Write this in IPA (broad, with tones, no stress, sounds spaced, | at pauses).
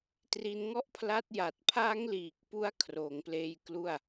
t r i˧ n ŋ ɔ˥˩ ʔ pʰ l a˦˥ t̚ j a˨˩ t̚ pʰ a˦˥ ŋ l iː˨˩ k̚ p u˦˥ a̯ kʰ r oː˩˦ ŋ p l eː˧ j k l u˥˩ a̯